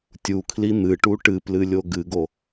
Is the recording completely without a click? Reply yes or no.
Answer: yes